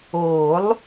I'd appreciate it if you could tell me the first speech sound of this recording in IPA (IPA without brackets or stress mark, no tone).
oː